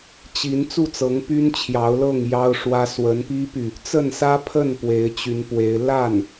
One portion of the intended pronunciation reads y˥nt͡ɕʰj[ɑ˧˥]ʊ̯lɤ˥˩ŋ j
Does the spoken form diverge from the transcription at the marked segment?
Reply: no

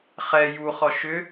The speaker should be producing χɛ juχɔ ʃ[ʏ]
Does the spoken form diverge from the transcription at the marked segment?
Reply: no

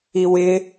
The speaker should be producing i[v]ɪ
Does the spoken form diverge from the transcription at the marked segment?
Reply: yes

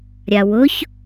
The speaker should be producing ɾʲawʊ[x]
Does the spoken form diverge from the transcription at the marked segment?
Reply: yes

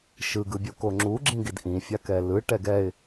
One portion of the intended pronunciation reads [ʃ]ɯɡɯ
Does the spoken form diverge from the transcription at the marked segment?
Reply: no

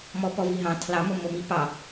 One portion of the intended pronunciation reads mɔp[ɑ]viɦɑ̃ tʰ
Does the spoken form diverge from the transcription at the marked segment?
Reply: yes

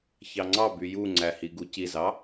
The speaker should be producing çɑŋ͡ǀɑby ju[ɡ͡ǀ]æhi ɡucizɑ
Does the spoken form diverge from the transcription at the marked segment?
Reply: yes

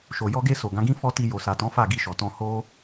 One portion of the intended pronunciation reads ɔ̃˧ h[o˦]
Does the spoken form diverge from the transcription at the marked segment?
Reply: no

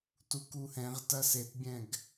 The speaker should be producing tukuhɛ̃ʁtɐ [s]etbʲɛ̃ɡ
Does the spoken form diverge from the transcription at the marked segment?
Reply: no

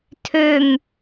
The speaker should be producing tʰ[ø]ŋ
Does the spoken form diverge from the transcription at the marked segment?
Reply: no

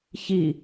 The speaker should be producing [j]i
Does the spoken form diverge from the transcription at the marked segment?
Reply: yes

